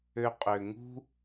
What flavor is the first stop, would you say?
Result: ejective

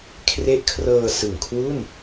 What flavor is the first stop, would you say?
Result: aspirated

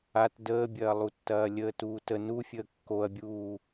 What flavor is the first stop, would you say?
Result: plain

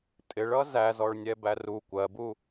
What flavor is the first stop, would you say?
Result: ejective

